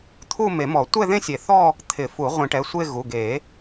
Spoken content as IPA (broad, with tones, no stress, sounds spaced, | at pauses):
t̪ʰ u˥˧ m e˨˩˦ m ɔ˨˩˦ tʷ ɛ˥˧ ð ẽ˥˧ sʲ e˨˩˦ θ ɔ˥˧ | t̪ʰ ɪ˨˩˦ f u˨˩˦ ʁʷ ĩ˨˩˦ ʈ ɛ˩˧˩ sʷ e˥˧ ɣ u˩˧˩ ɡ e˨˩˦